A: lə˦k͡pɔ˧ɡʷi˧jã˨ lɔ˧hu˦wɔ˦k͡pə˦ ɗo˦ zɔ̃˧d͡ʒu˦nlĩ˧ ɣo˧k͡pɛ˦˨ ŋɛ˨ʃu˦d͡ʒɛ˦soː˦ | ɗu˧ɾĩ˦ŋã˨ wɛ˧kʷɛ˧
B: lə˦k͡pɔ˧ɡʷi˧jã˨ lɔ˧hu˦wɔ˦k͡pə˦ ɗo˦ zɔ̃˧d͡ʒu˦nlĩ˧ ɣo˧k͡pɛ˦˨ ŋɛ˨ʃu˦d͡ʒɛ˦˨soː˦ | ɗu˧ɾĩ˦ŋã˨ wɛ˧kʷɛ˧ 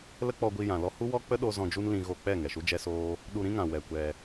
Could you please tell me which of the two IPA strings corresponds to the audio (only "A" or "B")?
A